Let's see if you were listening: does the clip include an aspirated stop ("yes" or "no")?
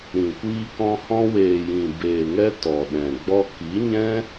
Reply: no